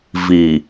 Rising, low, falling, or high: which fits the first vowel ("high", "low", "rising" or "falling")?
low